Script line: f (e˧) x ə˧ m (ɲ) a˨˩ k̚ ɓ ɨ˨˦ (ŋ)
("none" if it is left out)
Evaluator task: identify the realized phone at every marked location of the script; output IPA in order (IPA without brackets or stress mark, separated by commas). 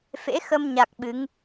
ḛ˧˥, ɲ, ŋ